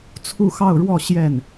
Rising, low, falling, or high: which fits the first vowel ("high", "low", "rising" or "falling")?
falling